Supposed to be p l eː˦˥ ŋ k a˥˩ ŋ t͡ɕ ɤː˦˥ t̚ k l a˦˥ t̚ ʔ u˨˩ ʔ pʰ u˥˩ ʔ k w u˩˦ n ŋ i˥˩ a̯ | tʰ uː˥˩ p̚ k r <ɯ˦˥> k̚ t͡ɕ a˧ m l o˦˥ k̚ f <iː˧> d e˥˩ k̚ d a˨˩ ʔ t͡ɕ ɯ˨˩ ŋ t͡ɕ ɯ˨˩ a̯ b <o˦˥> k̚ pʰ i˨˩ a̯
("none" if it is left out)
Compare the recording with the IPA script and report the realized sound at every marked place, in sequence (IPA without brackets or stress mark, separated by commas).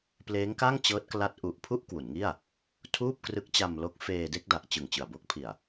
ɯ˦˥, eː˧, o˦˥